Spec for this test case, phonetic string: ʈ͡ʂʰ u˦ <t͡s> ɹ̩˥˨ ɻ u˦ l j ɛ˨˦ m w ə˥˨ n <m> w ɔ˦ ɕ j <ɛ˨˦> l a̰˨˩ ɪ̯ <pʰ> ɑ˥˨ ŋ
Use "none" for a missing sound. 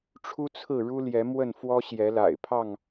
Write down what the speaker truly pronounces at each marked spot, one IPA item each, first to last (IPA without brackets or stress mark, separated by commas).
t͡sʰ, f, ɛ˨˦, pʰ